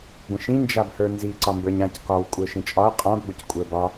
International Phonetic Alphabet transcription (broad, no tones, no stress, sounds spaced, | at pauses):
ɡʷ ə̃ ʃ ĩ n d͡ʒ a b h ə˞ n z i ǀ ɒ m b ə˞ ɲ ã c k ɒ w kʷʼ ə˞ ʃ ĩ t͡ʃʼ ɒ ɐ̯ qʼ ã b ɡʷ ə c kʷʼ ə˞ b ɒ